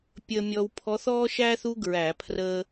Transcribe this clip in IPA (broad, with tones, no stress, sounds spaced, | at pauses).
pʲ əː˧ mʲ ɔ˧ w pʰ ɔ˧˥ θ ɔː˥ ʃ æː˥ θ u˥ ɡ ɹ æ˧˩˧ pʰ r əː˧